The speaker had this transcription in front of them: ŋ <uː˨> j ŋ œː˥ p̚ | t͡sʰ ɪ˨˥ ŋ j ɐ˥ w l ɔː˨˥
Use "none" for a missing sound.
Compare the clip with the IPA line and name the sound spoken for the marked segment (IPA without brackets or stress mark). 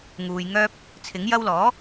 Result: uː˨